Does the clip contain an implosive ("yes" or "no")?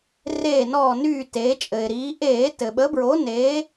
yes